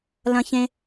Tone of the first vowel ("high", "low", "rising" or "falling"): high